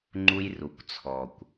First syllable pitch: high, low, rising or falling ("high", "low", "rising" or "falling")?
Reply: high